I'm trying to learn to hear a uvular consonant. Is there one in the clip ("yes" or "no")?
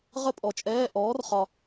yes